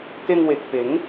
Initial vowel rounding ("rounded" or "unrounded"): unrounded